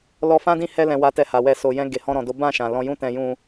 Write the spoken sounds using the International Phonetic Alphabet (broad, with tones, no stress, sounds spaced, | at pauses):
l ɔ˧ f ã˦ d ĩ˦˨ h ɛ˧ l ɛ̃˨ w a˨ t ɛ˨ h a˨ w ɛ˧ s o˨ j ɛ̃˧ ɡ e˨ h ɔ̃˧ ɾ ɔ̃˨ d o˨˦ b ã˦˨ ʃ ã˨ l ɔ̃˧ j ũ˦ t ɛ̃˧ j ũ˧